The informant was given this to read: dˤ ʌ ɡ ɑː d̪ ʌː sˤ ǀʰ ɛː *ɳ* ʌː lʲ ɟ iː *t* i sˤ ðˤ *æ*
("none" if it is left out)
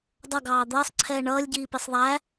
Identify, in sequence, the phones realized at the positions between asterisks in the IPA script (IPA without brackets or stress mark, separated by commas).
ɳ, p, æ